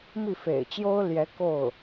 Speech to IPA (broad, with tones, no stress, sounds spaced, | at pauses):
m i˥˩ f ḛ˨˩ ɪ̯ t͡ɕ j o˥ ʊ̯ l j ɛ˧˥ k o˥˩ ʊ̯